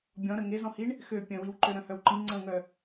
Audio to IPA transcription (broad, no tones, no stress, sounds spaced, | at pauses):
bʲ ɔ̃ ɾ ə ŋ e z ɔ̃ h i ɳ | x ø pʲ ə̃ w i w ǃ ø ɾ œ̃ h œ w ǃ ĩ ŋ͡ǀ ə̃ ŋ œ